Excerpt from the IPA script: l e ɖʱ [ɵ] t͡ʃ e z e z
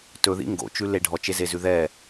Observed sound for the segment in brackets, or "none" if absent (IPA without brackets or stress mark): ɔ